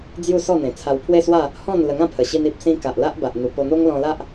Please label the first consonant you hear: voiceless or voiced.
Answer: voiced